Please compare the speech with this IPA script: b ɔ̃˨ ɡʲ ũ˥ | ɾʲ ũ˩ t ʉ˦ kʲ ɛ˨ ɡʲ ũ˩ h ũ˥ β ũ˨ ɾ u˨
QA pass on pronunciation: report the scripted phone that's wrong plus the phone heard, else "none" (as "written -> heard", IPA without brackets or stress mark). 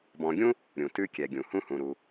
β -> h